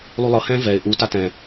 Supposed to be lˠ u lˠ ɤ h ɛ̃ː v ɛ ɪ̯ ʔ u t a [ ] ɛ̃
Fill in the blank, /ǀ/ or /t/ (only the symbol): t